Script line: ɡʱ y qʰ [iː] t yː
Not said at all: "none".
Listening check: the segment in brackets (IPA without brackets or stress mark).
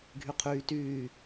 yː